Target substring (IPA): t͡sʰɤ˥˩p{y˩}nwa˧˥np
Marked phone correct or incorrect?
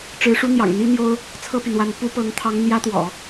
correct